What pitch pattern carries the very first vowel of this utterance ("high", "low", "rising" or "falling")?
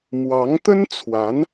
rising